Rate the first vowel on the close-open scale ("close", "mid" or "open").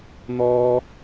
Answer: mid